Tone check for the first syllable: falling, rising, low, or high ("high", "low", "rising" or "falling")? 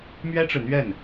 high